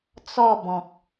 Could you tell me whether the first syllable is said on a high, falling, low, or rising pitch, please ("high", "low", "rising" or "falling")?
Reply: falling